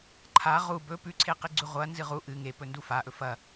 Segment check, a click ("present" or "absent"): present